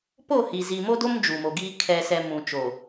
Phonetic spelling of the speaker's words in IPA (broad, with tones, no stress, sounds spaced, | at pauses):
p o˦˨ h i˨ z i˨ m o˦ d o˦ m d͡ʒ u˨ m o˨ ɡ iː˦ kʰ ɛ˨ s ɛ˨ m ũ˨ t͡ʃ o˨